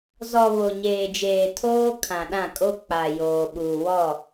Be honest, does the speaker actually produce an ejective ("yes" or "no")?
yes